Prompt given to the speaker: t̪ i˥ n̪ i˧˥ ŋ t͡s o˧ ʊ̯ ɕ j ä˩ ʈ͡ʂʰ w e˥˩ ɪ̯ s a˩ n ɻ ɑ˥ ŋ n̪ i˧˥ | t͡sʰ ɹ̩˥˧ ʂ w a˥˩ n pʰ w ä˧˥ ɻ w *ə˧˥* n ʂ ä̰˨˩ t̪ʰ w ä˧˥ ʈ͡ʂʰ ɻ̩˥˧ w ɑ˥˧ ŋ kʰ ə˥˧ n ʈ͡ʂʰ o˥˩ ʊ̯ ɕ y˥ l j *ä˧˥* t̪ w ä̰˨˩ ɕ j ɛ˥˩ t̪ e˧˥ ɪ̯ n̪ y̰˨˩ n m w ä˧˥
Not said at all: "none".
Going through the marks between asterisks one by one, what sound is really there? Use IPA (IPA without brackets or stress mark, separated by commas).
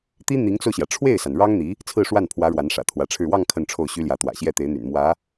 a˧˥, ä˧˥